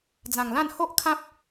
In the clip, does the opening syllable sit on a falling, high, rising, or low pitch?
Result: low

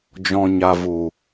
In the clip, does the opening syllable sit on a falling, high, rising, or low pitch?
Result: low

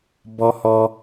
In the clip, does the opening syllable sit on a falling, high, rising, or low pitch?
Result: high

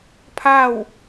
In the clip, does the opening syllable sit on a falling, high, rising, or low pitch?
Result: falling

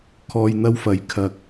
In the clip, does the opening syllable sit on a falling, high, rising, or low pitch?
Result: low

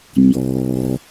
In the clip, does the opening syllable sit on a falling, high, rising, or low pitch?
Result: low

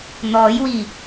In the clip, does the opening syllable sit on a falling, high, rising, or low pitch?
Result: rising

